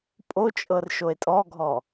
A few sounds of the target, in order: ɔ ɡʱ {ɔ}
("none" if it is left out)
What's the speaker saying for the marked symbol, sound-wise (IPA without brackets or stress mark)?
ɔ